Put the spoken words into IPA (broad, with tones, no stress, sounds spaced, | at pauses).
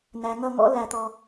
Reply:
n æ˨ ŋ ʌ˦˨ ŋ ɔ̰˦ l æ˨ t̪ ɔ˨